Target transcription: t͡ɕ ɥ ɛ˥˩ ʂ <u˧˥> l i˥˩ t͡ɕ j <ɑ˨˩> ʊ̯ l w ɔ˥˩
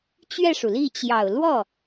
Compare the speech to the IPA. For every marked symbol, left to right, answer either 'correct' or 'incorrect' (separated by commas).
incorrect, correct